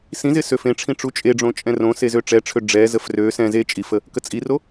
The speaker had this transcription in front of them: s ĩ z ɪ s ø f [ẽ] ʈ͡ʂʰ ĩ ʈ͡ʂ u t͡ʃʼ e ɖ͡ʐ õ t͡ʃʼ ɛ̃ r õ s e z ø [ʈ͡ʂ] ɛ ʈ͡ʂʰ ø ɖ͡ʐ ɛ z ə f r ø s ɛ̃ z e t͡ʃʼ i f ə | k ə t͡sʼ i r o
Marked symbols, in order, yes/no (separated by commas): yes, yes